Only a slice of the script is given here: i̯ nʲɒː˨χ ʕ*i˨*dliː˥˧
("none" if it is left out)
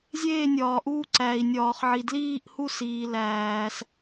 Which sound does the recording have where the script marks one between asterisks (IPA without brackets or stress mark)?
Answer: i˨